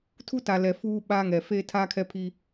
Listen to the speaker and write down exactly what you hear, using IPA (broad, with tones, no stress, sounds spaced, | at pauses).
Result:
tʰ u˦ t a˨ l ɛ˨ f uː˦ ɓ a˦ ŋ ɛ˨ f eː˦ tʰ aː˦ kʰ ɛ˦ pʰ iː˦